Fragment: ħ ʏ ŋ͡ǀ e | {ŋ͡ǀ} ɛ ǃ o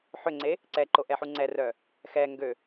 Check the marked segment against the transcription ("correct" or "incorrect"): incorrect